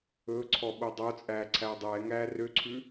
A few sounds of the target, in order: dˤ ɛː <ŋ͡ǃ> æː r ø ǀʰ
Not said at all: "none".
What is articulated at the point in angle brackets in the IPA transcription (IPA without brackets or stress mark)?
ŋ